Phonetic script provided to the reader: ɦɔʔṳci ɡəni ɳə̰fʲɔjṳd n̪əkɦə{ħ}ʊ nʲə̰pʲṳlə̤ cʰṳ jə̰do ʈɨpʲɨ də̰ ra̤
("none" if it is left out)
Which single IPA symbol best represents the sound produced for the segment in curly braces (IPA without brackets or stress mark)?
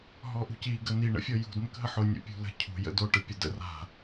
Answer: ħ